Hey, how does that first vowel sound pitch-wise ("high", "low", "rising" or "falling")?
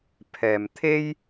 low